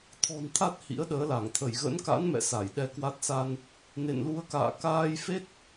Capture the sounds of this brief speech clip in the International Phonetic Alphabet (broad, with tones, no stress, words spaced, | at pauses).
t̪ʰɔ̤˨˩nt̪ʰa˦˥t̚ hḭ˧˥ə̯ɗəː˨˦la˧˩ŋt̪ʰə˧˩j ɣə̰˧˥nka̰˧˥nmɛ̰˧˨ sa˧˩jɗɛ˧kwa˦˥t̚ sa˧n | nḛ˧˨nlu˨˦ə̯ka̰ː˧˨ kaː˧jfe˦˥t̚